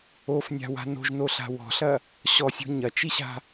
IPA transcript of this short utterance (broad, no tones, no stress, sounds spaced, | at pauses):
o f nʲ a̤ w a̤ n o̤ ʒ n o ɬ a̤ w ɔ̤ ɬ ɐ | ɕ ɔ sʲ o̤ ɲ ɐ t͡ʃ i ɕ a̤